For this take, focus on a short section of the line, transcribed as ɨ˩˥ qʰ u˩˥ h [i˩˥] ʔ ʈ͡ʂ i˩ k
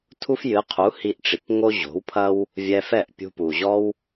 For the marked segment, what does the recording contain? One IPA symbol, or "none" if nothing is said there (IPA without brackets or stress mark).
i˧